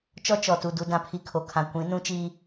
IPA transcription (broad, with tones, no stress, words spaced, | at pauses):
t͡ʃɔ˦ t͡ʃɔ˨tu˨ du˨dã˨pʰi˨ kʰo˨kʰã˨kʷĩ˨˦ nũ˦t͡ʃiː˦